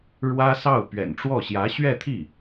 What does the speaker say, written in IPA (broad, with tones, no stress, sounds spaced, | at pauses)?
ɻ w ä˥ s ɑ˥˩ ʊ̯ p ɥ ɛ̰˨˩ n ʈ͡ʂ w ɔ˥˩ ɕ j ä˧˥ ɕ ɥ ɛ˥˧ t̪ʰ i˥˩